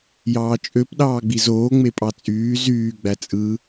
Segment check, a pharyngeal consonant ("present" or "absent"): absent